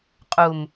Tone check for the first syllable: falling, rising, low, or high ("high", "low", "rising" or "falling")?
low